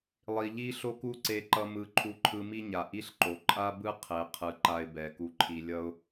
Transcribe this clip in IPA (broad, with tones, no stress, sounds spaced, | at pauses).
lˠ i˨ ʎ i˦ ɬ o˦ k u˦ ǀ e˧ ǃ ʌ˧ m ɯ˨˦ ǃʰ u˧ ǃʰ ɯ˧ m i˦ ɲ a˨ ʔ i˦ ɬ ǃ o˨ ǃʼ a˦ b ɯ˦ qʰ e˨ qʰ ɯ˨ ǃ a˧ ɪ̯ b ɛ˨ k u˧ ǃʰ i˧ lʲ ʌ˦ ʊ̯